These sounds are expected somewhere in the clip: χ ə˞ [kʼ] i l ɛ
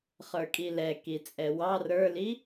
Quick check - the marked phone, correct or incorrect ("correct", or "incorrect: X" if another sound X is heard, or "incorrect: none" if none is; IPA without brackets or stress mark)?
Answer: correct